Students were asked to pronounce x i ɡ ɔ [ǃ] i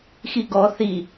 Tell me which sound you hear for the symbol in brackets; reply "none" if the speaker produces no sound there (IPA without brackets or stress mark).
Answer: θ